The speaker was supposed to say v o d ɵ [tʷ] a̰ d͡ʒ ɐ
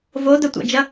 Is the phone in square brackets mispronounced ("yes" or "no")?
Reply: no